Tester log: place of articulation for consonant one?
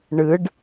retroflex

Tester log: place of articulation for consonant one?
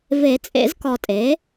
labial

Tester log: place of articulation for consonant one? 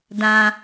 alveolar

